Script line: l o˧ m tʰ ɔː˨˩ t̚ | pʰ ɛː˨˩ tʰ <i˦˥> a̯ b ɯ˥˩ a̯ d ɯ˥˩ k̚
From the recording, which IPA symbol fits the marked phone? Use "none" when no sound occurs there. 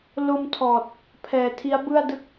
i˦˥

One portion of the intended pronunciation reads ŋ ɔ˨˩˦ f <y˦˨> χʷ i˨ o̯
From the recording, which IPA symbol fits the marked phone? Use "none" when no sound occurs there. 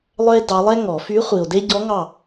y˧˥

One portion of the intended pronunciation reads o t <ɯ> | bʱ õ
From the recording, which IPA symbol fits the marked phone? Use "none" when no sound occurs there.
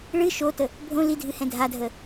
ə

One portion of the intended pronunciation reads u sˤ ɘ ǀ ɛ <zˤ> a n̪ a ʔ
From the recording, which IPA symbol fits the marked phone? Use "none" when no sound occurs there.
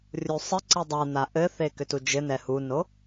dˤ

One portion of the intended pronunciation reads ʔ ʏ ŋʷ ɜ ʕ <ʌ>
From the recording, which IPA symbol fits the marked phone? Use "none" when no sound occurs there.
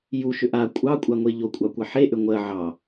ɑ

